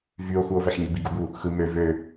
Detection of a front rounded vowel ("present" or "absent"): present